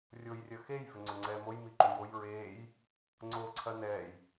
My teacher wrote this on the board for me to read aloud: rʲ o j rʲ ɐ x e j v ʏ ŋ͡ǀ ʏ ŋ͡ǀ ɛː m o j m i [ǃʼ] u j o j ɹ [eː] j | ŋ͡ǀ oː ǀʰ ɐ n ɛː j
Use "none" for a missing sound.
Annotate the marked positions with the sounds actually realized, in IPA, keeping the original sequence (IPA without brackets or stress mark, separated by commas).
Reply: ǃ, eː